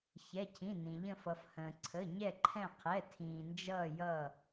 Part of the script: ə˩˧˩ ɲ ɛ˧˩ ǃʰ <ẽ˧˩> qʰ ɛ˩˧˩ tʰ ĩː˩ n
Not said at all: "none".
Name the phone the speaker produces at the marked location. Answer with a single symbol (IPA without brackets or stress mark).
ɛ̃˧˩